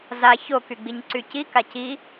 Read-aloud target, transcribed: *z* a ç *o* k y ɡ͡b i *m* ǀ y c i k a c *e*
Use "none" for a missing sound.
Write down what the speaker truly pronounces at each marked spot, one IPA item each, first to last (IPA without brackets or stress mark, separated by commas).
z, o, ɲ, i